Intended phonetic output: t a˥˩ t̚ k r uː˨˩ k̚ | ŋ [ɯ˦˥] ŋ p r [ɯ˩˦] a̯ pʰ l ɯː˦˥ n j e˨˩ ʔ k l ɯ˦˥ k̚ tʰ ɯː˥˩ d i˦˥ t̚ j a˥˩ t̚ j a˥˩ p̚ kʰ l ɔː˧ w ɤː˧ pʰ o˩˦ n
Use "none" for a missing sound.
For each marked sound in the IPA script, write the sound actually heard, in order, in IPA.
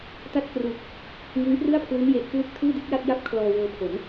ɯ˦˥, ɯ˥˩

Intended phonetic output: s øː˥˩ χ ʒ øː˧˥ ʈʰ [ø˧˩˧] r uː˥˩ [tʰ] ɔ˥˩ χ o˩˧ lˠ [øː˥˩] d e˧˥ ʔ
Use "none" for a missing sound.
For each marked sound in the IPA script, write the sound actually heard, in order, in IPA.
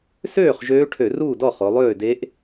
ø˧˩˧, d, øː˥˩

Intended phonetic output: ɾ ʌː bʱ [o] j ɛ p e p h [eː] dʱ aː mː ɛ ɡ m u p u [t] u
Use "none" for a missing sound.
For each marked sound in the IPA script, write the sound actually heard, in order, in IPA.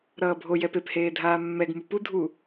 o, eː, dʱ

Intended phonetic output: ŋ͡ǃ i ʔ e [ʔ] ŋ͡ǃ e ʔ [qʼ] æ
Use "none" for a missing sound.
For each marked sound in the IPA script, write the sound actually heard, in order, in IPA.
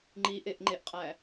ʔ, qʼ

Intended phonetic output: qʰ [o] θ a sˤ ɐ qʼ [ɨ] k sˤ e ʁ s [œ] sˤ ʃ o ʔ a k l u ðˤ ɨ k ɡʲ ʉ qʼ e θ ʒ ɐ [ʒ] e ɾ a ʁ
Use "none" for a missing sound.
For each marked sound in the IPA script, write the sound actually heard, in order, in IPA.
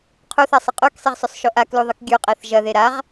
u, ʉ, ɵ, ð

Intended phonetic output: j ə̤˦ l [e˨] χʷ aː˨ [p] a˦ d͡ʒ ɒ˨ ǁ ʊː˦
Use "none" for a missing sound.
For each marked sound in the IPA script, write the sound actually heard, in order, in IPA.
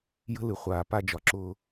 ɨ˨, p

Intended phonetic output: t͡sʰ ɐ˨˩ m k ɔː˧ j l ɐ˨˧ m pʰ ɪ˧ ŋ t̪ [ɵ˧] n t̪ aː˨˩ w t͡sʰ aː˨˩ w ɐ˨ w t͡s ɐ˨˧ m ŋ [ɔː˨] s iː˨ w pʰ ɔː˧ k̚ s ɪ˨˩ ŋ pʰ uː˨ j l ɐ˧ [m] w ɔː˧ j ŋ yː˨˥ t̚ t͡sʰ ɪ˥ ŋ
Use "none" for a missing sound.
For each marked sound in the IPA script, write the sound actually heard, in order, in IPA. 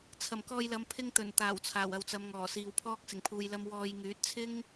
ɵ˨˩, ɔː˨˩, m

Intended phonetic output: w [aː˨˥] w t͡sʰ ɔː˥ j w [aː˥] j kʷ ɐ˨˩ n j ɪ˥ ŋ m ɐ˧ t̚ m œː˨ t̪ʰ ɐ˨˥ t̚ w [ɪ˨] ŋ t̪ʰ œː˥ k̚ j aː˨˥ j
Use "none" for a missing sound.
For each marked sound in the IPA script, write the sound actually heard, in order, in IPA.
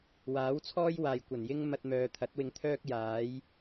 aː˨˥, aː˨, ɪ˧

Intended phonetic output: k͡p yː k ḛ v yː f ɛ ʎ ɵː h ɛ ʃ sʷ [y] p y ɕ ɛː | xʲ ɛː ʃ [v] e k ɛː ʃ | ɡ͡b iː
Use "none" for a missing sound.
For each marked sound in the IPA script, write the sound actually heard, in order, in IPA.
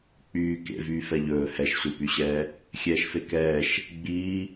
i, f

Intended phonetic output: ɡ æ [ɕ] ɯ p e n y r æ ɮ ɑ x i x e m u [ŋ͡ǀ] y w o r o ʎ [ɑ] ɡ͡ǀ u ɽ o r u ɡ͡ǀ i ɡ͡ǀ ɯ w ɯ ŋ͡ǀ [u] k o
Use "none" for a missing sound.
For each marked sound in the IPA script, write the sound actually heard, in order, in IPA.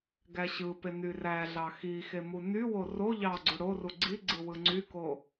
ɕ, n, ɑ, y

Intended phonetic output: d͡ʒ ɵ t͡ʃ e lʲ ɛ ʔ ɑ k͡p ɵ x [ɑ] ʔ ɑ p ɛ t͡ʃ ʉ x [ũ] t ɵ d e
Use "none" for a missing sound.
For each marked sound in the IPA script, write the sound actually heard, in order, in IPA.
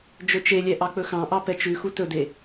ɑ̃, u

